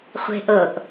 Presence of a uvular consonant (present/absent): present